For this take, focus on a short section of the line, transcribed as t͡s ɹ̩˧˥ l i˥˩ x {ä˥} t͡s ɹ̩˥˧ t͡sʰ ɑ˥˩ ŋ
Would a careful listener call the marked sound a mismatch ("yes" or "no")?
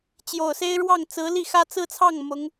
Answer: no